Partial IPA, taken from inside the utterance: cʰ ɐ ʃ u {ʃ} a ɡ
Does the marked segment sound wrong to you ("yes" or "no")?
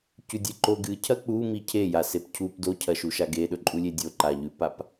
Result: no